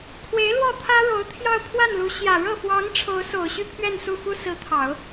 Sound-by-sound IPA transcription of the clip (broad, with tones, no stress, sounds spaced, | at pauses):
kʰ w e˧˥ ɪ̯ l w ɔ˥˩ t̪ʰ ä˥ ɻ o˧˥ ʊ̯ t̪ʰ j ɑ˥˧ ʊ̯ pʰ w a˥˩ n l u˧˥ ɕ j ä˨˩ ɻ ɤ˥˩ f w ɑ˧˥ ŋ ʈ͡ʂʰ o˧˥ ʊ̯ s o˨˩ ʊ̯ ɕ y˥˧ pʰ ɥ ɛ˥˧ n s u˥˩ f u˥ s ɹ̩˧˥ t̪ʰ ɑ˨˩˦ ʊ̯